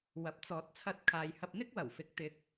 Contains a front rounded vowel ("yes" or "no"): no